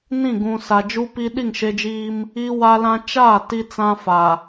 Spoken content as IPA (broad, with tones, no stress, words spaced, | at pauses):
nĩ˦˨ ɡũ˨sa˨ d͡ʒu˦pi˦ ɗi˦˨ŋʃe˦d͡ʒiː˦m | i˦ wa˦lã˦ t͡ʃaː˦˨ ti˦t͡sã˦fa˨